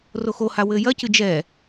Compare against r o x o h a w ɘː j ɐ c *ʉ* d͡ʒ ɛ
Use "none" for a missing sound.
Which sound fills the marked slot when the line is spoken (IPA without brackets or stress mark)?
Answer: ɨ